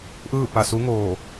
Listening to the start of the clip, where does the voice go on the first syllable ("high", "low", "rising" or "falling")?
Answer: falling